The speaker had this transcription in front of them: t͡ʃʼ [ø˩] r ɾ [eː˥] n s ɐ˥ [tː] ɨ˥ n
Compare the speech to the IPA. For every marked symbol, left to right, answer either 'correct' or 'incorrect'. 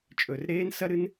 incorrect: ɵ˩, correct, incorrect: ɾ

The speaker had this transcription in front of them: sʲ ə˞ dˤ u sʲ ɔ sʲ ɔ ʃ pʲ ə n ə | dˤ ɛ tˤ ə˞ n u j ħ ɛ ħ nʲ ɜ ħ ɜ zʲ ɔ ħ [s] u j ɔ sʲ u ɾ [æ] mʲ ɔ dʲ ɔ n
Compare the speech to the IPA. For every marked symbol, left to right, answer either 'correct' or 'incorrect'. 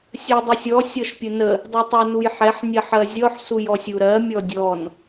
correct, incorrect: ɜ

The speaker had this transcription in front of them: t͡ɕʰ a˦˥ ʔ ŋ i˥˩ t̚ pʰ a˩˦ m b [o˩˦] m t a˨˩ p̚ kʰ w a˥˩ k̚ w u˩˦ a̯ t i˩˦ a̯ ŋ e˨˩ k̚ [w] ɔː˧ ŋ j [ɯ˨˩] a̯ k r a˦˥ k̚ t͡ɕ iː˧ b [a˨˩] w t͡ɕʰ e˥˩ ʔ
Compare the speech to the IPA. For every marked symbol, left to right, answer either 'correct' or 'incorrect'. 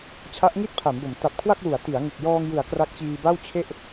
correct, incorrect: j, incorrect: ɯ˩˦, incorrect: a˥˩

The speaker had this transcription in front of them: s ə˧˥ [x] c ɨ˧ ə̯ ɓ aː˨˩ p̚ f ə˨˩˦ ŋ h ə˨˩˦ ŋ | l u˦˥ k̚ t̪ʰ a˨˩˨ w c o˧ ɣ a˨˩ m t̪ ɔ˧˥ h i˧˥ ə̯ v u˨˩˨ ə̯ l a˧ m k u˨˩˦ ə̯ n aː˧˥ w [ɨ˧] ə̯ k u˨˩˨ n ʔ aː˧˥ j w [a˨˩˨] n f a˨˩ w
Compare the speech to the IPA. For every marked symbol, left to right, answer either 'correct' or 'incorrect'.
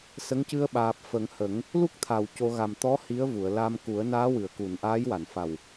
incorrect: ŋ, incorrect: ɨ˨˩˨, correct

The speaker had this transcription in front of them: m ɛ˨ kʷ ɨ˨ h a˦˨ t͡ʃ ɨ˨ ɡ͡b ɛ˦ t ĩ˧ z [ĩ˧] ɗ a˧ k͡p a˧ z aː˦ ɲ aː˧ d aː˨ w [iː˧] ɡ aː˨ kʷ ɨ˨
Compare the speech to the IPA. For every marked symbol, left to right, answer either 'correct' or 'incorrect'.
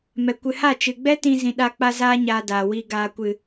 incorrect: ĩ˨, correct

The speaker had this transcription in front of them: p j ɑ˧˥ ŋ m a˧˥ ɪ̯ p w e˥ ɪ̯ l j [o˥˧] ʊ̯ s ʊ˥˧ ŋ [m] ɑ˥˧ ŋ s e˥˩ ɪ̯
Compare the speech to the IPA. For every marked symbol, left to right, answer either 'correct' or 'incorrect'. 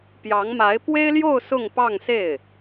correct, incorrect: p

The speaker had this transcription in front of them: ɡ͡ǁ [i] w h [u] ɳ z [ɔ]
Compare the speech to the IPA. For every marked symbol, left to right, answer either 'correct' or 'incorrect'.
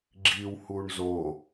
correct, correct, incorrect: o

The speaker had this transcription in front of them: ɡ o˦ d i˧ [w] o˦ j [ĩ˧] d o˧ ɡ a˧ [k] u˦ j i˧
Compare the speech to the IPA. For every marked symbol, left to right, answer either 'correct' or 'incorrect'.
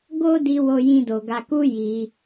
correct, incorrect: ĩ˦, correct

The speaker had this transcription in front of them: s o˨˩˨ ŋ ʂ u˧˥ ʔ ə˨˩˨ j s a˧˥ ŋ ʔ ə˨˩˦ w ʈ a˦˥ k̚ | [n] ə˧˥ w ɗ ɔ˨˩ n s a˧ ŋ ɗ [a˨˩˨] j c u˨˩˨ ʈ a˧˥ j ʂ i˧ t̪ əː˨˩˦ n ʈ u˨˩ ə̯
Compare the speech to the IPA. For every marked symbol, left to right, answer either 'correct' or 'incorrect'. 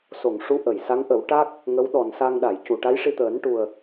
incorrect: ŋ, correct

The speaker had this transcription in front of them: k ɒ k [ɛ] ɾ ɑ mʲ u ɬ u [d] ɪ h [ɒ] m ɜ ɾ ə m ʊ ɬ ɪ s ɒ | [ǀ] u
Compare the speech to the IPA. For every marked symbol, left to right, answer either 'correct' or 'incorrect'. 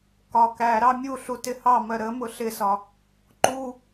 incorrect: æ, incorrect: t, incorrect: ɑ, incorrect: ǃ

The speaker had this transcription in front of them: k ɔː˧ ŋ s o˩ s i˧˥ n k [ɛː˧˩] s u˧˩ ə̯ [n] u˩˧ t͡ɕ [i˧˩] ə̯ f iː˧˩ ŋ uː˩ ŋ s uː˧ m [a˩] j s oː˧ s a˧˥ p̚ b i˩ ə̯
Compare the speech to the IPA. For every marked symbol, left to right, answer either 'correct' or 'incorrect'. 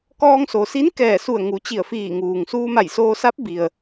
correct, incorrect: ŋ, correct, incorrect: a˧˩

